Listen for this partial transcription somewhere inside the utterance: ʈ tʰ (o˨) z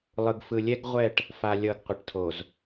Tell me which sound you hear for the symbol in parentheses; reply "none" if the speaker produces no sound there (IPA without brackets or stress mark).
o˨